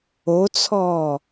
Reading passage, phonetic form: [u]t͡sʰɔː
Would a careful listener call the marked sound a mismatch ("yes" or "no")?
yes